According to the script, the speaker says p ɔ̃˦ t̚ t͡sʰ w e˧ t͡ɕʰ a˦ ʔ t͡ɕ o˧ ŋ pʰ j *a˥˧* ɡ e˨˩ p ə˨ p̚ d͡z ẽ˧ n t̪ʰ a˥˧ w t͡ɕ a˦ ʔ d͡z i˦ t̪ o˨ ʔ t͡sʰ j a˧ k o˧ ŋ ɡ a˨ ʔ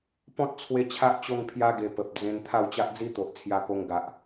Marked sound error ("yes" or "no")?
yes